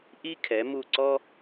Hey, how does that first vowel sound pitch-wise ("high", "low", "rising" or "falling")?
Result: high